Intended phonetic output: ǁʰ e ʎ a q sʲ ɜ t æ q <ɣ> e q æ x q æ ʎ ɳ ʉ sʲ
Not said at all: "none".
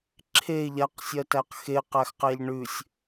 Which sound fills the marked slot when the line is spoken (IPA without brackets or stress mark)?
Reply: x